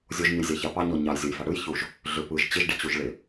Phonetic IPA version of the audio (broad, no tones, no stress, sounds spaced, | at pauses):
zʲ o ʒ ɲ ɯ j zʲ a ç a p ɑ ɲ ɔ ɲ ɑ j zʲ o j f a ɽ ɯ j ç u ʒ | ɮ ʏ p ɯ ʒ t͡ɕ ɪ ʒ ɖ i t͡ɕ u ʒ ɭ ɪ